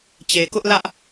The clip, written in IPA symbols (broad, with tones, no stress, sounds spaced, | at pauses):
t͡ɕ e˨ k ʊ˦ ʔ l ä˦ ʔ